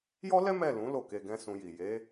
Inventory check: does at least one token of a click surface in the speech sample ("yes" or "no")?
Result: no